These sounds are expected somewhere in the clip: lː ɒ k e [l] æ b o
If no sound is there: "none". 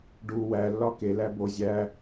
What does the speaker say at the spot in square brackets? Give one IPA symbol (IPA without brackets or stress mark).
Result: l